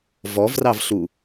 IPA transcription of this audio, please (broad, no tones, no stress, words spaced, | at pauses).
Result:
vɔvrɑvɬu